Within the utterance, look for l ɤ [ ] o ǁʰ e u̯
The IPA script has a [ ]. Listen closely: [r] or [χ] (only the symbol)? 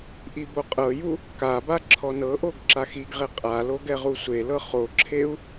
χ